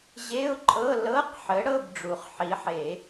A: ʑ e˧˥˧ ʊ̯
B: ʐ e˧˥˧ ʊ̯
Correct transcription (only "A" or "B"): A